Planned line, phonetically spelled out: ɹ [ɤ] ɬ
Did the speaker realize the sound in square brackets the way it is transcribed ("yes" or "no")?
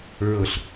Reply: yes